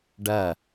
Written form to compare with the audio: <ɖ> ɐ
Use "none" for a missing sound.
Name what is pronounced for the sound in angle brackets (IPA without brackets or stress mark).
ɖ